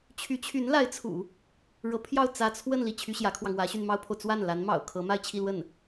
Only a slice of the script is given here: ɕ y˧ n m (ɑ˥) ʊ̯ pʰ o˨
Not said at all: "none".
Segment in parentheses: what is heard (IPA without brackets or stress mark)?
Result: ɑ˥